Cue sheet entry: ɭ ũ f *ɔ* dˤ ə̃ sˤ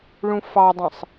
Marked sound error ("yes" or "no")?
yes